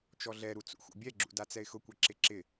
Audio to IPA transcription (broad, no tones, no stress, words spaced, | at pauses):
t͡ʃɔɮɛɾu t͡sṵxṵbʲɛɡ͡ǁṵ dat͡sɛɪ̯xʊkʷɛ ǁɪǁɪ